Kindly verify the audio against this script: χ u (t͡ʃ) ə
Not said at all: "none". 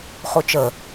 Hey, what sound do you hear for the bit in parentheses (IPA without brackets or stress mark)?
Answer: t͡ʃ